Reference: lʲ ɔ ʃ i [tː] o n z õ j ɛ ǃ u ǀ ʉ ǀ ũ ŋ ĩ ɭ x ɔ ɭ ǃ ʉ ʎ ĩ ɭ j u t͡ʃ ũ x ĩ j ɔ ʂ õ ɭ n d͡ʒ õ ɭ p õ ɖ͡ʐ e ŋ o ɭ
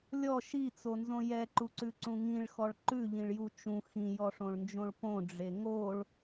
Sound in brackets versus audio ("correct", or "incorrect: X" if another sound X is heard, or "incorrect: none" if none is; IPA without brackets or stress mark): incorrect: t͡s